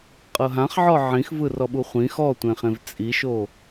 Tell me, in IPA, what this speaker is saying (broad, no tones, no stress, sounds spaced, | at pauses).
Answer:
qʼ ɤ ɦ ã χ ʕ ɔ ʕ ĩ x v ɯ r ɔ ɓ u χʷ ĩ x ɔ tʷ ẽ χ ẽ v t͡sʼ i ʃ o